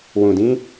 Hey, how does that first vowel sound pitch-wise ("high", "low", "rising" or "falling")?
low